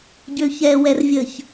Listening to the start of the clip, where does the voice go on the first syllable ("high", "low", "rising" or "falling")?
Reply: low